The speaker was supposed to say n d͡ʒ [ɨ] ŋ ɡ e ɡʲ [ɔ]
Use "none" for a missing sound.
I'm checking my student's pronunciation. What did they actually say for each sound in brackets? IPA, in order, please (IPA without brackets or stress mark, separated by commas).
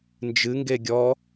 ɨ, ɔ